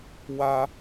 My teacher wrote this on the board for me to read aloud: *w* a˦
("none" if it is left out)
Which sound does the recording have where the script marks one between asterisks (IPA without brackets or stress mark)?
w